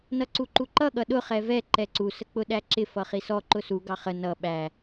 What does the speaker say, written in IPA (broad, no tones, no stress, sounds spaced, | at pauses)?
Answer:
n ʌ ǀ u ǃ u ǃ ʌ ɠ ʌ ɗ ʊ χ ɛ v ɛ ǃ ɛ ǀ u s ə k͡p ʊ ɗ æ ǁ ɪ f ʌ χ i s ɔ ǃ ʊ s u ɡ ɑ χ ə n ʌ ɓ æ